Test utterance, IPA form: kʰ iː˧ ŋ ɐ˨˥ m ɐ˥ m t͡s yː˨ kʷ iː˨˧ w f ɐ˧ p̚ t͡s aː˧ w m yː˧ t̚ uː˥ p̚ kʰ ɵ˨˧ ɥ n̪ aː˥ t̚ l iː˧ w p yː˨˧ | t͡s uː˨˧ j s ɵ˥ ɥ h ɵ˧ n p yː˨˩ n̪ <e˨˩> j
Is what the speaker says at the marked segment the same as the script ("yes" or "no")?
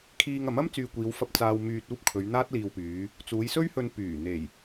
yes